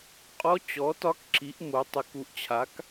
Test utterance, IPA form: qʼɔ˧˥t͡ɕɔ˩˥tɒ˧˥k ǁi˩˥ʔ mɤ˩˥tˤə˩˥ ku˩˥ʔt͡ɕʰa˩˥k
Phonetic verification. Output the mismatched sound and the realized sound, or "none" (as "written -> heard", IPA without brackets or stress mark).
ɤ˩˥ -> o˩˥